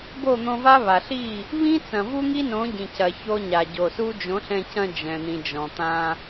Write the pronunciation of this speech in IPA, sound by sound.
bo˦˨n̪õ˧va˦ βa˨ɬi˦˨ | βĩ˦t͡sɐ̃˨vu˦ ŋi˦nõ˨˦ɟĩ˨cɐ˨ ço˧ɲa˨ɟo˨ su˦ d͡ʒõ˨˦ɬɛ̃˧ cɐ̃˧ d͡ʒɛ̃˨n̪ĩ˨ d͡ʒɔ̃˨t̪ã˧

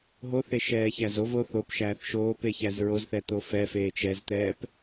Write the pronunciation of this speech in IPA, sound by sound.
ɦoθeʃɛː çæzov oθ opʃæːθ ʃoːpeçæz ɹozθɛ t̪ofɛfeːt͡ʃ ɛzt̪ɛːp

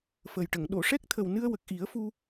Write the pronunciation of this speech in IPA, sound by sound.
fə˨˩jʈə˨˩˨ŋ ɗo˨˩˨ʂɛ˦˥k̚t̪ʰə˨˩wnɨ˧ə̯ wə˨˩k̚ʔi˨˩˦ə̯fu˧

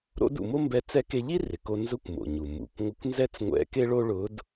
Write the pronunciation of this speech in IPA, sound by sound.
ɾo̰˧˥dṵ˩˧mo˥mbɛ˧˥ t͡sɛ˧˥ke˧ʎi˥ rɪ˩˧ko˧ nzʊ˧˥kʷmo̰˩ɲu˩ mṵ˩˧kʷ ŋʷɪ˧˥kʷnzɛ˥t͡sŋʷɛ̰˧˥ ke˥ɭo˥ ɭʊ˧˥d

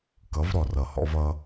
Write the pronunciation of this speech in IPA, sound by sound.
kʌ˨˦vɾɔ˨r ʌ˨hɔ̰˧v ʌ˦

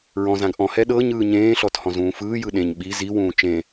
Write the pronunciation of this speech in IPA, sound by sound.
ɹɔ̃zãɡ ʔɔ̃hɛ ɗɤɲɯː ɲẽːɬɔt hɔ̃zũːfɯːjɯ ɗẽɲ ɓi ziwũː t͡ʃẽ

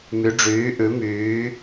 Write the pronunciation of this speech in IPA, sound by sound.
my˩˧ɖ͡ʐyː˩˧ ʔʉ˩˧myː˩˧

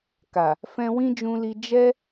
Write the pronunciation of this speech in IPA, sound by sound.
ka˨ | fɛ̃˧wĩ˦d͡ʒũ˧li˧ d͡ʒɛ˦

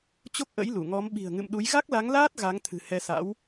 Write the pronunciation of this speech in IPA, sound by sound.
t͡ɕo˦˥k̚ʔə̰˧˥j lu˧˩ŋɔ˨˦m ɓi̤˨˩ə̯ŋɨ̰˧˨mɗu˨˦j ɣa˦˥k̚la˨˦ŋlaː˦˥t̚ ɣa˨˦ŋt̪ʰɨ̤˨˩ hɛ˧ sa̰˧˥w

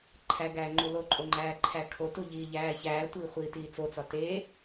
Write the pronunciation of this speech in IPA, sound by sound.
ǃʰæɡæː ŋ͡ǃuloǃʼo ŋ͡ǃæːǃʰækʰotu ʎiːʎæːçæːtʷiː χʷiːtiːt͡sot͡sɒ te

